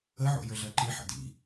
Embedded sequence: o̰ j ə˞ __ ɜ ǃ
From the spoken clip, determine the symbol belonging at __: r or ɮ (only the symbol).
ɮ